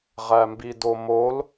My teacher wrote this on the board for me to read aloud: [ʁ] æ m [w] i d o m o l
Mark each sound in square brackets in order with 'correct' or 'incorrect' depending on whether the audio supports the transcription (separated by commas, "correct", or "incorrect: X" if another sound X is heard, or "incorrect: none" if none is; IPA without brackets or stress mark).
correct, incorrect: b